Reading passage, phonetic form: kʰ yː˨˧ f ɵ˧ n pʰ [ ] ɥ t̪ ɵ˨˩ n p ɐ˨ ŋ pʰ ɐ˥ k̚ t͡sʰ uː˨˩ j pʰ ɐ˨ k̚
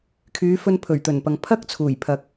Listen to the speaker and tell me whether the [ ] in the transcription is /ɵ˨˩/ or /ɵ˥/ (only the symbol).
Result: ɵ˨˩